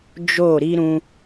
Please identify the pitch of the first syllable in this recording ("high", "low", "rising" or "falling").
falling